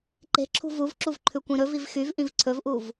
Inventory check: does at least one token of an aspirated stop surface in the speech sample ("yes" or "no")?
yes